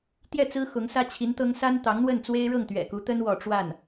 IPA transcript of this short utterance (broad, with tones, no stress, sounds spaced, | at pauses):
t̪ j ɛ˥˩ t͡s ɹ̩˥ x ʊ˧˥ ŋ s ä˥ t͡ɕʰ i˧˥ n t̪ ɤ˥ ŋ s a˥ n t̪ ɑ˧˥ ŋ n̪ w ə˥˩ n t͡s w e˥ ɪ̯ ɻ ɤ˥˩ ŋ t̪ ɥ ɛ̰˨˩ k u˧˥ t̪ ə˥ n w ɔ˥˧ ʈ͡ʂ w a˥˩ n